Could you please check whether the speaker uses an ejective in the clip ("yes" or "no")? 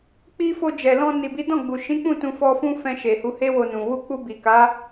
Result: no